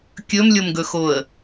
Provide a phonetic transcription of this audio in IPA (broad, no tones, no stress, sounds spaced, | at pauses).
kʲ ɵ m lʲ o m ɡ ɵ x o ə̯